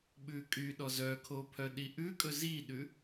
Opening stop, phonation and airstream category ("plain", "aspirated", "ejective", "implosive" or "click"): implosive